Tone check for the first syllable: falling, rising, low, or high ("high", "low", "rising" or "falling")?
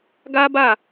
high